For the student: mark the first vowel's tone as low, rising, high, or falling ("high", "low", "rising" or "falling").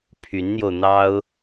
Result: rising